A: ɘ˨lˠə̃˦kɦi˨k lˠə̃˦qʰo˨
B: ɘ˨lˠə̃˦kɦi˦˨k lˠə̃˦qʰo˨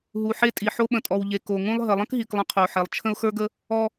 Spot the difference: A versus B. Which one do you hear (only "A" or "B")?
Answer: A